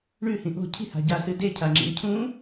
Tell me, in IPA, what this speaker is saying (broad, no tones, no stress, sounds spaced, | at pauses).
ɳ ʉ h ĩ ʔ o̤ cʰ i̤ h a̤ ɟ a s ɨ d e cʰ a ŋ͡ǁ ḭ ŋ cʰ ũ